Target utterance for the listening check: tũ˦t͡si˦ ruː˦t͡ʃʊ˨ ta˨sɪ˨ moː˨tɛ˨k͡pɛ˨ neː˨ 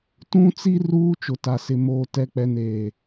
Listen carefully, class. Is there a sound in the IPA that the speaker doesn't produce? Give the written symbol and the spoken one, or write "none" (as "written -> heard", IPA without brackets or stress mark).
none